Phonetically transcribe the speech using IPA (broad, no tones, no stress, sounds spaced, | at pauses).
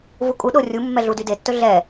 v u kʼ u ɗ o rʲ u mː ɛ ɮ u d y d e tː ɵ ɮ ɛ